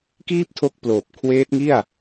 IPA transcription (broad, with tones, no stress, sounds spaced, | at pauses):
k iː˥˩ p̚ tʰ o˦˥ k̚ p l oː˨˩ p̚ kʰ w eː˦˥ t̚ ŋ i˥˩ a̯